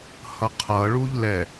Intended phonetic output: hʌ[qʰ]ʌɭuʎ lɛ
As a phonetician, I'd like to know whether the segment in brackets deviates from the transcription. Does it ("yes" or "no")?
no